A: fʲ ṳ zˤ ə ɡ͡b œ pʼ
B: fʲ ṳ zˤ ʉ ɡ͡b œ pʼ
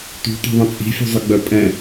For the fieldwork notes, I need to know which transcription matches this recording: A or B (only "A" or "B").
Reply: A